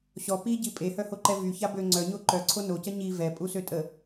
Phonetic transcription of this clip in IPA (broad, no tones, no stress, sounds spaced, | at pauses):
ɕ ɔ p i ɟ i pʼ e h œ h o ǃ ɛ v y ç a b ø ŋ͡ǀ œ ɲ o ǃ œ ǀʰ o n o c ə ɲ i v ɛ pʼ u s ø tʼ ə